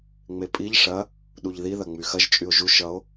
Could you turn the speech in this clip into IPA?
ŋ͡m e pʼ i ʎ ʂ ɐ | ɗ u ʎ ð i ð ɐ ŋ͡m y x ɐ ʒ t͡ʃʼ y o̯ ʒ u ʃ ʌ o̯

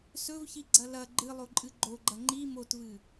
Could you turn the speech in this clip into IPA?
s ɵ v ç i ɡ͡ǀ ɐ l ɐ ɡ͡ǃ ɨ lˠ o ǃʼ ɨ ɡ͡ǃ o ɡ͡ǃ ɐ ŋ͡ǃ i m o t v ɨ

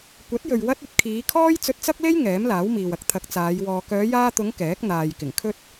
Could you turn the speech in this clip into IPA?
kʷ ɐ˨˥ t̚ j ɵ˨ ɥ w ɐ˥ t̚ ɵ˧ t̚ kʰ iː˨˧ kʰ ɔː˥ j t͡s ɵ˧ t̚ t͡s ɐ˥ k̚ l e˥ j ŋ ɛː˨˥ m l aː˨˥ w m iː˨ w ɐ˥ k̚ t̪ʰ ɐ˨˥ k̚ t͡s aː˨˧ j w ɔː˧ k œː˨˧ j aː˧ t̪ ʊ˨˧ ŋ k ɛː˨˥ k̚ n̪ aː˨ j k ɪ˨˩ ŋ kʰ ɵ˥ t̚

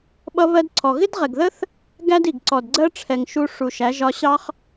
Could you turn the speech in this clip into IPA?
ɓ ʌ˦ β ɜ˦ d ǀʰ ɔ˨ ɣ ɪ˦ d ʁ ɛ˨ ɡ ð ə˦ θ | ɡ æ˦ d i˨ ɡ ǀ ɔ˨ d ɡ͡ǀ ɜ˦ ʈ͡ʂʰ ɛ˨ ŋ ʃ u˧ ʂ u˨ ʃ æ˨˦ ʒ ɒ˧ ɕ ɑ˦ χ

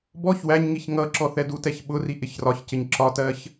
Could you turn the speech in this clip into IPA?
b ɔ ç w æ ɲ ŋ i ç ŋ ʌ ǁ ɔ θ ɛ d u t ɛ ç ɓ ʊ r i ʔ ɪ ç r ɒ ç c ɪ ɲ ǁ ɒ t ɜ ç

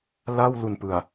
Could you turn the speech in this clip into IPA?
l a˥˩ w l u˨˩ n p ɯ˨˩ a̯

